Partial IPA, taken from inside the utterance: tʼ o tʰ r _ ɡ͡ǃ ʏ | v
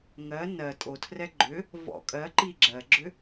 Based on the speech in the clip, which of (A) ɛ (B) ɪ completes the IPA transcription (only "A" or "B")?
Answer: A